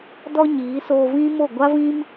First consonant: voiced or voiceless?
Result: voiced